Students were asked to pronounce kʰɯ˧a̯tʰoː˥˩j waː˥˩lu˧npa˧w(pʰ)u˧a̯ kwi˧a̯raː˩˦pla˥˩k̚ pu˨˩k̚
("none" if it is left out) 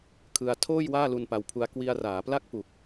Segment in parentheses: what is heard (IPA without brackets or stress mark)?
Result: pʰ